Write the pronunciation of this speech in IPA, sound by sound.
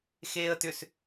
x eː ə̯ t ʏ s

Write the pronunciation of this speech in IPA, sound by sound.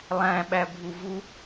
lˠ æ̃ ɓ æ bʱ u v u

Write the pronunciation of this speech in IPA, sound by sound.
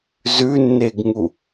z ʉ nː e ɡ ŋ u

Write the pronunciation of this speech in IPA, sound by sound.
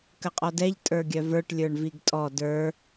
k ə qʼ ɔ d ɛ ʎ tʼ ə˞ ɡʲ œ v ə˞ ʈ lʲ ə˞ ɳ v i ɡ tʼ ɔ d ə˞

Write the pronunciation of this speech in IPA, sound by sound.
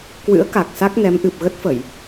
k w ɨ̰˧˥ ə̯ k a˨˩ k̚ s a˦˥ k̚ n ɛ˨˦ m ʔ ɨ˨˩ p̚ ɣ ə˦˥ t̚ f ə˧˩˨ j

